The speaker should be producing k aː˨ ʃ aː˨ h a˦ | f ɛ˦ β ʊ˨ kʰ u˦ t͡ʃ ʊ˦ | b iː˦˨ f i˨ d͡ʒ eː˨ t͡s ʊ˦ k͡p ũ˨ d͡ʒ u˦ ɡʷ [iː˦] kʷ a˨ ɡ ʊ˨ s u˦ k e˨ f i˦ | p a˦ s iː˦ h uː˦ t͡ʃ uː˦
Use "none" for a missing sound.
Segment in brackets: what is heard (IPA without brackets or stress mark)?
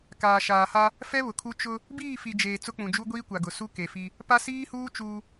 iː˦